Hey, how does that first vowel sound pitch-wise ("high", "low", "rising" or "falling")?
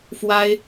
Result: high